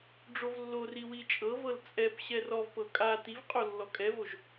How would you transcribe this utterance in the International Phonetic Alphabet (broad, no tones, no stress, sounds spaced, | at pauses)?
ɖ͡ʐ o v lː o r i w i t͡ʃʼ ɤ v ɤ l t͡sʼ ɛ p ɕ ɛ r ɔ v p ɤ kʼ a t i v qʼ o lː ɔ kʼ ɛ v o ʒ